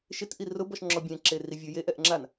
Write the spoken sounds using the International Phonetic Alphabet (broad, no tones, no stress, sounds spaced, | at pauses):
ʃ ɪ t ʔ i r ʊ b ɔ ʃ ŋ͡ǁ ɔ bʲ ɛ̃ ǁ e r i vʲ ʊ j e ʔ ɛ ʔ ŋ͡ǁ a n